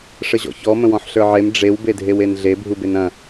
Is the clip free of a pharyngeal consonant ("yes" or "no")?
no